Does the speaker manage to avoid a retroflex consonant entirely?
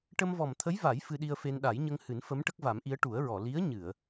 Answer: no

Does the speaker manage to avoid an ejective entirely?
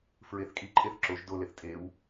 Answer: no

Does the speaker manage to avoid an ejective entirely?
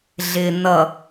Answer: yes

